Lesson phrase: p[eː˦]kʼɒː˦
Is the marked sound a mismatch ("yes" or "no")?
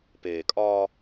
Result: yes